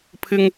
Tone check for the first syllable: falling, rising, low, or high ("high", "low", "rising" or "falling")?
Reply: high